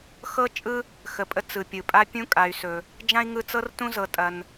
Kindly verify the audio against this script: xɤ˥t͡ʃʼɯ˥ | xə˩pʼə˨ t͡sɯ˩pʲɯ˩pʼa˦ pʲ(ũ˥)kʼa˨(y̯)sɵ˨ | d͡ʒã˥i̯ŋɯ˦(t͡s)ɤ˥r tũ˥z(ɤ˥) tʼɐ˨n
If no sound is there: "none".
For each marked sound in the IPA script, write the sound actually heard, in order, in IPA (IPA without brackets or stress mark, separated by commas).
ũ˥, y̯, t͡s, ɤ˨